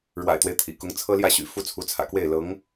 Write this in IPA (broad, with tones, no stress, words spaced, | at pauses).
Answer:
ɻwa̰˨˩ɪ̯t̪we˦ɪ̯ t̪ʰḭ˨˩kʊ˧˥ŋt͡sʰɤ˥ ljä˥˩ɕy̰˨˩ fu˥˩t͡sʰu˧˥t͡sʰä̰˨˩kwe˥˩ɪ̯ lɤ˧˥ŋ